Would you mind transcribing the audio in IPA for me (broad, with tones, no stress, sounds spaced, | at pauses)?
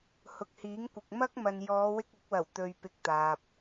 h ʊ˨ k̚ h iː˨˥ ŋ kʷ ɪ˨ k̚ m ɐ˥ k̚ m ɐ˨ n j ɔː˨˧ w ɪ˧ k̚ ʊ˨˥ k̚ w ɐ˨˩ w t̪ ɵ˧ ɥ p ɪ˧ k̚ t̪ aː˨ p̚